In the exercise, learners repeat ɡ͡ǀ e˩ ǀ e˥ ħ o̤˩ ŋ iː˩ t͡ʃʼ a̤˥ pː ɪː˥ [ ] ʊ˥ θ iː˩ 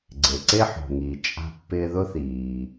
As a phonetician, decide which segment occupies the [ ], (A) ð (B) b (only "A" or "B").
A